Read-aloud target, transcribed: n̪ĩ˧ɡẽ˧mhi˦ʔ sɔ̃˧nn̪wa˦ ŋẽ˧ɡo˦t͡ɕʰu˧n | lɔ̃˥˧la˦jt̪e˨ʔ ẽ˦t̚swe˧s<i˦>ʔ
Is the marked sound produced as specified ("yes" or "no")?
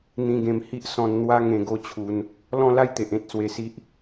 yes